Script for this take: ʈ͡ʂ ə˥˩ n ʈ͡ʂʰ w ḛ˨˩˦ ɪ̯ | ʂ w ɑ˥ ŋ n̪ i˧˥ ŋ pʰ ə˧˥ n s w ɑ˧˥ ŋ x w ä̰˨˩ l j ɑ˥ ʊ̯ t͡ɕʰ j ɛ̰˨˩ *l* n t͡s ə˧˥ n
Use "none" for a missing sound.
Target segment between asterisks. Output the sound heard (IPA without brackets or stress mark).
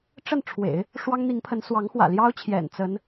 none